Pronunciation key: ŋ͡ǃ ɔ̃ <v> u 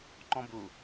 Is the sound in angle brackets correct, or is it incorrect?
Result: incorrect